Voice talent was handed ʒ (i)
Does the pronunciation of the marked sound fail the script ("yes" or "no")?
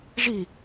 no